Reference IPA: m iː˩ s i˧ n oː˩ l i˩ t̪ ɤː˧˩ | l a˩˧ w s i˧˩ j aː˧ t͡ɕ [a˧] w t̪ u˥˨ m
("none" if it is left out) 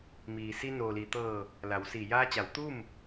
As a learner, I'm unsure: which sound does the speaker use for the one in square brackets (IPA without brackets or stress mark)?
a˩˧